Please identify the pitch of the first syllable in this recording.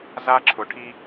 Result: high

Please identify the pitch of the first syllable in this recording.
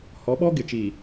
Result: rising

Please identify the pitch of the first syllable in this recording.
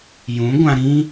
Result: rising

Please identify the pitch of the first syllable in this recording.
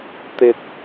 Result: low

